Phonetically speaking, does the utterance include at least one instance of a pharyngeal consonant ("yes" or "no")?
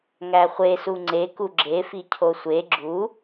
no